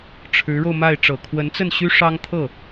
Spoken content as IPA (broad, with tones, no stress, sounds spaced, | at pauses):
ʈ͡ʂʰ ɻ̩˧˥ ɻ o˧ ʊ̯ m a˥˩ ɪ̯ ʈ͡ʂ ɤ˨˩ kʰ w ə˧˥ n t͡s ə˥˩ n ɕ y˥ ʂ ɑ˥ ŋ t̪ʰ ɤ˥˩